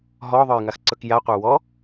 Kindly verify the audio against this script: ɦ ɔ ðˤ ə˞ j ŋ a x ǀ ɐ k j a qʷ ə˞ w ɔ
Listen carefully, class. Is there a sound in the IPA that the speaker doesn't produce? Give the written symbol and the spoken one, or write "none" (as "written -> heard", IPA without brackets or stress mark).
ɐ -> ə˞